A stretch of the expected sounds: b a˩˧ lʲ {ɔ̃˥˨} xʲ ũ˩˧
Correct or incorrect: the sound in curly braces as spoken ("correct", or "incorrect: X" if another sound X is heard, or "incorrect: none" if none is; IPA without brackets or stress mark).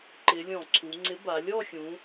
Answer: incorrect: ɔ˥˨